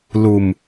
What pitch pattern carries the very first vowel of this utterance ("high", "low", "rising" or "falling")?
low